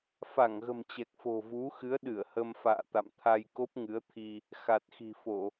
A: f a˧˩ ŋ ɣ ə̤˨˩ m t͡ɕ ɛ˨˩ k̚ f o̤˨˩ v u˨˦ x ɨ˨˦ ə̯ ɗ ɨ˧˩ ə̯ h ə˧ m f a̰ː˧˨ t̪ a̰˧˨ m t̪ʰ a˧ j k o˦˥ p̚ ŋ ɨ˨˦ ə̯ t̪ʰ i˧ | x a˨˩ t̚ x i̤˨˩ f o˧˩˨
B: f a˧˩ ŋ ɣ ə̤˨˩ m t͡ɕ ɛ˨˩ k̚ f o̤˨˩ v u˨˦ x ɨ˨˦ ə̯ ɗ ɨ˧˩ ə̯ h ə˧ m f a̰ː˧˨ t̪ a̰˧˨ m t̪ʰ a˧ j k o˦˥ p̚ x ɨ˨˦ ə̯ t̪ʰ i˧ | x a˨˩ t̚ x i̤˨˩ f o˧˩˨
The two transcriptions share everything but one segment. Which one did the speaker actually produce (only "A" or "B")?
A